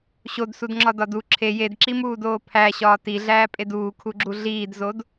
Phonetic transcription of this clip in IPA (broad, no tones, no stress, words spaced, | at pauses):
ɕodsudŋ͡ǁɒdɒ du ǁʰe jedǁimuːdoː pʰæɕɒː tiɮæːpʼed uːkʰuɡ͡ǁu ɮiːdzod